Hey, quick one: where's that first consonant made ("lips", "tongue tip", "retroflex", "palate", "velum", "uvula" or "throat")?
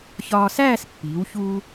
palate